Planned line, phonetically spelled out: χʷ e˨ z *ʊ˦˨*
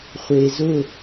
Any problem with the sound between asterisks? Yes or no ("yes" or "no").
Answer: no